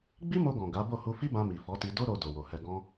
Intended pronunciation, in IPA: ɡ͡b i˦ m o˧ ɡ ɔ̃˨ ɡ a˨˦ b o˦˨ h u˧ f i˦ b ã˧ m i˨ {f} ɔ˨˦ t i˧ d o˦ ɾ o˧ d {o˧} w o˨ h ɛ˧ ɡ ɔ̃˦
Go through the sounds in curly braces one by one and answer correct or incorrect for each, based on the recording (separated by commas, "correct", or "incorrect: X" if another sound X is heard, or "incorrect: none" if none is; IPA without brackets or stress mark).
correct, incorrect: o˨